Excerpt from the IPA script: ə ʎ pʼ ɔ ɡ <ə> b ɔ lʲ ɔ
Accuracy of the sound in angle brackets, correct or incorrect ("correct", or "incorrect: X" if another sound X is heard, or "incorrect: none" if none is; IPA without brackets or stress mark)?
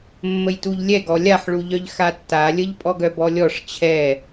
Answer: incorrect: œ